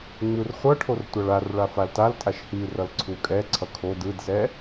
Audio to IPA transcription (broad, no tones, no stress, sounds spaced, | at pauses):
ŋ͡m ɯ r χʷ ʌ ʈʰ o r tʷ a ɭ a r ɭ a f a l t a l tʼ a ʃ h i r ʌ l ǀʰ u kʼ ɛ ǀʰ ʌ kʰ o d ɯ d s ɛ